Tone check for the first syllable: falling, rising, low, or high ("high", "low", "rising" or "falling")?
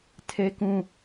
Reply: high